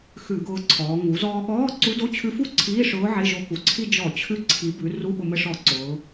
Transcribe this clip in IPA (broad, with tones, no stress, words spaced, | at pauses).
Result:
xʉ˧˩˧ɡʊː˧ǀʰɔː˩˧ ŋu˩˧zɔː˧ɠɔː˧˥˧ ǀu˧˥do˧˥˧t͡ɕʰʉ˧˥fu˥˧ ǀʰiː˧˥˧ʂʊː˧˥ ʕe˧˥˧ʒo˧˥ku˩˧ǀʰi˥˧ d͡ʒɔ˧˩˧t͡ɕʰʉ˧ ǀʰi˩˧bʉ˩˧ ru˧˥˧ɓʊ˧mə˧ʂɔ˧˩˧ ǀʊː˩˧